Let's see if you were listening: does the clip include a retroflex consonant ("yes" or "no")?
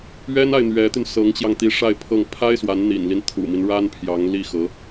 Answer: yes